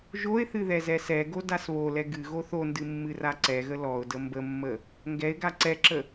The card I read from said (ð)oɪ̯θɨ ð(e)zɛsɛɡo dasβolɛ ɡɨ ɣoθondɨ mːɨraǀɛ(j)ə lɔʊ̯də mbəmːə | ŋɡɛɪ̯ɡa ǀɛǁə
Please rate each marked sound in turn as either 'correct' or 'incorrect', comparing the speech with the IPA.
incorrect: ʒ, incorrect: ɛ, incorrect: ɣ

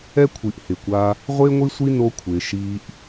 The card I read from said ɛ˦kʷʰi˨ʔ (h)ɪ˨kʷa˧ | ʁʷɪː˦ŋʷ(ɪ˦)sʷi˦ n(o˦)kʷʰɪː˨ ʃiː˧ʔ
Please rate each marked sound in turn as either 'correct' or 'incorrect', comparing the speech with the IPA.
correct, incorrect: i˦, correct

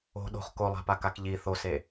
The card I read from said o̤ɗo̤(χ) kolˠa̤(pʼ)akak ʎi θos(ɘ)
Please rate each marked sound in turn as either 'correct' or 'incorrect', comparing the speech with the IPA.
correct, incorrect: p, incorrect: e

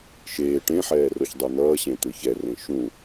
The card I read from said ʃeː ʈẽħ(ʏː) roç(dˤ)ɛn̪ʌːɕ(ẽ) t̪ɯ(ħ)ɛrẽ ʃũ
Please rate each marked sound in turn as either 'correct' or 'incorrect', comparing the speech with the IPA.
incorrect: ɛː, correct, correct, incorrect: ç

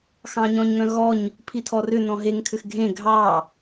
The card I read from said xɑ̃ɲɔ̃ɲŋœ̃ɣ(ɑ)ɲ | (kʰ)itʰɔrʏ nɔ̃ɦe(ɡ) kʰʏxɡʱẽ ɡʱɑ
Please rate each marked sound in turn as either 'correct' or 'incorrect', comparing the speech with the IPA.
incorrect: ɔ, incorrect: pʰ, incorrect: ŋ

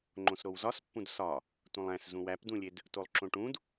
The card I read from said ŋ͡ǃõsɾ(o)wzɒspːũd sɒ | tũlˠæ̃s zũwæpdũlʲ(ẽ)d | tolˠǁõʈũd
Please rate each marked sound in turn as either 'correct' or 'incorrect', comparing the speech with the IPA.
correct, incorrect: e

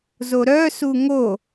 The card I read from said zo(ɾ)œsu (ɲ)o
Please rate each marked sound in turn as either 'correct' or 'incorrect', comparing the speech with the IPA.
correct, incorrect: ŋ

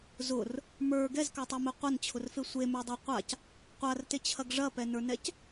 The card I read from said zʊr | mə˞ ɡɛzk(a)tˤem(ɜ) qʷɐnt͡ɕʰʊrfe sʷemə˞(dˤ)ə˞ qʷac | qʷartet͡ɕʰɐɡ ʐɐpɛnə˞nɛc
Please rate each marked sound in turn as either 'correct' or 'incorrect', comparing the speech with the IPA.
correct, incorrect: ɛ, correct

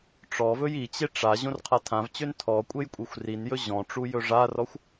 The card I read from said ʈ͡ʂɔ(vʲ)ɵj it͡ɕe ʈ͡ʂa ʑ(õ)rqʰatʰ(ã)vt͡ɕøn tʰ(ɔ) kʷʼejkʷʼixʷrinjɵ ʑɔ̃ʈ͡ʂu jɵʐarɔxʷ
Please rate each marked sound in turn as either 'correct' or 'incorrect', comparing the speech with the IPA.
incorrect: v, correct, correct, correct

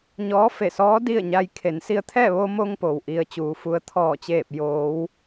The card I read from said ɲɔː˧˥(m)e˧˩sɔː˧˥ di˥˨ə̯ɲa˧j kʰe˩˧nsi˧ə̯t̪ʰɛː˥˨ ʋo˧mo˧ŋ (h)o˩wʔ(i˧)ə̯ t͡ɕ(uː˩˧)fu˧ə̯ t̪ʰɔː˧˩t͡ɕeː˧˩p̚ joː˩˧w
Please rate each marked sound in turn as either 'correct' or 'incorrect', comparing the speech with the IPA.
incorrect: f, incorrect: p, correct, correct

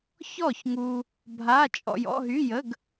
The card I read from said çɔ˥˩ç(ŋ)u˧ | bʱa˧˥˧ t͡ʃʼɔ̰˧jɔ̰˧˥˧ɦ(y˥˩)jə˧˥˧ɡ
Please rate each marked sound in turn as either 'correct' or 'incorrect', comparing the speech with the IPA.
correct, incorrect: y˧˥˧

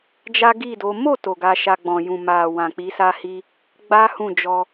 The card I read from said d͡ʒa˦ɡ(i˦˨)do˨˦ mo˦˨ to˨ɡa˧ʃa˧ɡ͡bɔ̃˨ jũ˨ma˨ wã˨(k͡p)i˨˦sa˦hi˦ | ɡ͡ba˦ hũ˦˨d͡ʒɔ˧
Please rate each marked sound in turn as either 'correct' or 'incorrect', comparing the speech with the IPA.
correct, correct

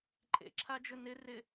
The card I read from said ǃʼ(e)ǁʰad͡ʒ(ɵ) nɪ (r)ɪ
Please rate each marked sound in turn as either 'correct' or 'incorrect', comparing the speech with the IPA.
incorrect: ḛ, correct, correct

